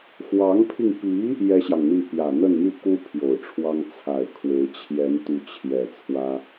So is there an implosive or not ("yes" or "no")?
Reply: no